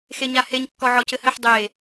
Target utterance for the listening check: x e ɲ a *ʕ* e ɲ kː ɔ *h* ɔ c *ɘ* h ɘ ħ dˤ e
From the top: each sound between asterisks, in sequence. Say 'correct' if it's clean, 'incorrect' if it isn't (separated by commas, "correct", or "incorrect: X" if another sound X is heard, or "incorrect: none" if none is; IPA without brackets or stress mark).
incorrect: h, incorrect: ʕ, correct